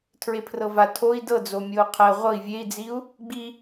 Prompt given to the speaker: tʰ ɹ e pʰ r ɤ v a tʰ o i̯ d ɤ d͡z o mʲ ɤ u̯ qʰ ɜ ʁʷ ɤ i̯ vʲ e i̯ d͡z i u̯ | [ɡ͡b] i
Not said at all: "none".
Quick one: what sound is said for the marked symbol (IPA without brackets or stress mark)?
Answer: ɡ͡b